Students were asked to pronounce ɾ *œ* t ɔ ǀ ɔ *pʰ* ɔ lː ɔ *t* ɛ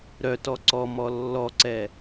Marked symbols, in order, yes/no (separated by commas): yes, no, no